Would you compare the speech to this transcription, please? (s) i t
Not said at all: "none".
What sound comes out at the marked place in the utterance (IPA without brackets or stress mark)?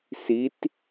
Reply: s